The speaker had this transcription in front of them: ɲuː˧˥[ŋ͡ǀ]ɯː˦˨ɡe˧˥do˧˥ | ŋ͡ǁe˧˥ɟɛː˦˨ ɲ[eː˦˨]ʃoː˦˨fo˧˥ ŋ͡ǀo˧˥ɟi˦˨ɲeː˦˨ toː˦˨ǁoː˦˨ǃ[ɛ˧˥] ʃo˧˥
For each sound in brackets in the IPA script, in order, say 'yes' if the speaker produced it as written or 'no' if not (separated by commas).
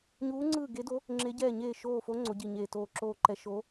yes, yes, yes